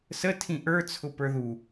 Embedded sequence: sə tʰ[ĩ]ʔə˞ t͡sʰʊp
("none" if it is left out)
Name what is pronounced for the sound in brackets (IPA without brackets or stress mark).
ĩ